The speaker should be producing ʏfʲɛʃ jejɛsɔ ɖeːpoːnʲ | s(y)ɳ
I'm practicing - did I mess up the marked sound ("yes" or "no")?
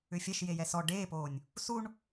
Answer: yes